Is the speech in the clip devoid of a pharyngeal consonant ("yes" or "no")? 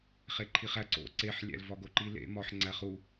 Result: no